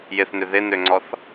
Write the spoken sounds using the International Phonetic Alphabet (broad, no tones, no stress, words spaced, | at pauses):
jɪθnʏ ðɪnøŋ͡ǀɔθ